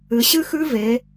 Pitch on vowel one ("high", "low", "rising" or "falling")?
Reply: low